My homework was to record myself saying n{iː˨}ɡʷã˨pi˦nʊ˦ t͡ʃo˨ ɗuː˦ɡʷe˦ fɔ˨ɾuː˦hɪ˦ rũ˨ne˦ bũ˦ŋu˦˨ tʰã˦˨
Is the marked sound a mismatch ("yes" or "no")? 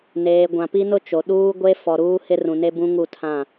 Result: yes